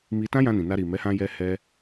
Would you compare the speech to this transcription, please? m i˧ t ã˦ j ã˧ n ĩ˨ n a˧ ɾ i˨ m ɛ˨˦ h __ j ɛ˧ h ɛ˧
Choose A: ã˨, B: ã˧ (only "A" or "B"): B